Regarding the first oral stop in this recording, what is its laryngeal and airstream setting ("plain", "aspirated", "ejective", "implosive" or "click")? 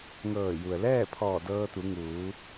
aspirated